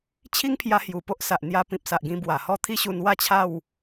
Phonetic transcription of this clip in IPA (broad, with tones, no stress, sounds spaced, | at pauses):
t͡ɕʰ i˦ ŋ pʰ j a˧ h j u˨˩ p o˦ ʔ s a˨ ʔ n̪ j a˧ p ĩ˨ p̚ s a˨ ʔ ɡ ĩ˧ b w a˨˩ h ɔ˦ t̪ʰ i˦ ɕ u˧ n w a˥˧ t͡ɕʰ a˥˧ w